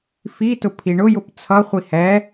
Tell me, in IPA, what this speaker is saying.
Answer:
f i t ʊ pʰ i ɳ ʊ j ʊ p t͡sʰ ʌ χʷ i h ɛ

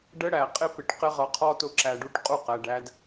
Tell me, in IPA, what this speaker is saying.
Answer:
ɖ ə˦ ɽ æ˨ qʼ ɪ˦ p ɪ˨ ʈ q ɪ˦ ʁ ʌ˨ qʰ ɔ˦ t ʊ˦ ǁ æ˨ ɖ u˦ ʈ qʼ u˦ q æ˨ ɖ æ˦ d

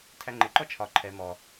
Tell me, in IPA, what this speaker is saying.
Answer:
tʰ æ ŋ͡ǃ ɪ ǃ ɔ t͡ʃʰ ɒ ǃʰ ɛ m ɔ

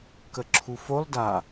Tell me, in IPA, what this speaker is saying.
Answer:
k ə ǁʰ u f o lˠ d a

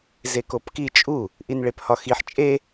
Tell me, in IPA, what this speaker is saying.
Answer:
z e k o p k i t͡ʃʼ u | ʔ i n ɭ e p h ɒ x i ħ t͡ʃʼ e

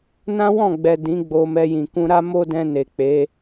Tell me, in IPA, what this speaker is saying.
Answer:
n ã˦ w ɔ̃˦˨ ɡ͡b ɛ˨ d ĩ˨˦ ɡ͡b o˧ m ɛ˧ j ĩ˨ k ũ˧ ɾ a˦ m o˦ d ɛ̃˧ n e˨ k͡p e˨˦

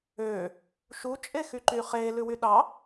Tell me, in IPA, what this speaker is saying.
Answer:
øː | ʃ u t͡ʃʼ e x y ǃ y χ eː l ʉ w y ɗ ɑ

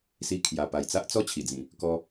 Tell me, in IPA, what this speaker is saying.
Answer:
s i˧ kʰ j a˨˩ p a˨˩ j t͡s a˦ ʔ t͡s ɔ˦ t͡ɕʰ i˨˩ d͡z ĩ˨˩ | k ɔ˧

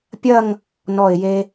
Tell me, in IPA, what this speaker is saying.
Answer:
pʲ ɐ˥˧ ŋ | n ɔ˧˩ ɪ̯ j e˧

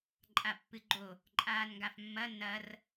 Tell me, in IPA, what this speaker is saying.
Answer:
ǃʼ a pː ɨ ɡ͡ǃ o | ǃʼ aː n ŋ ɡ a f mː ɐ n ɐ r

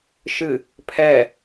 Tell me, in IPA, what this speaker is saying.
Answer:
ʃ ɨ | pʰ ɛ

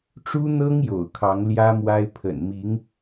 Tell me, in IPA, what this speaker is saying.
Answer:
ʈ͡ʂ u˥ n̪ ɤ˥ ŋ j o̰˨˩ ʊ̯ kʰ ɑ˧˥ ŋ l j ä˥ m w a˥ ɪ̯ pʰ ə̰˨˩ n m i˧˥ ŋ

